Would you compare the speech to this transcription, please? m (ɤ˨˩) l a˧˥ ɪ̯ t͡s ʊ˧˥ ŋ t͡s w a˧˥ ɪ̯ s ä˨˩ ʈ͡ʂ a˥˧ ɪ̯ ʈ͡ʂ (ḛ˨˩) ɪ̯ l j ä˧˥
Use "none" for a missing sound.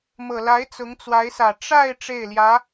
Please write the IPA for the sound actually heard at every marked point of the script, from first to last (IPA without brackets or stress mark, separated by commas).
ɤ˨˩, e˥˩